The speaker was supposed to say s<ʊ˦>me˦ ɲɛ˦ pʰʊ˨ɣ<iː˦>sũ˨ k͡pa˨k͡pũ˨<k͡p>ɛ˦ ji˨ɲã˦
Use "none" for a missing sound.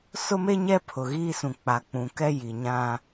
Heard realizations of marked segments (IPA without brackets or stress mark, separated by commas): ʊ˦, iː˦, k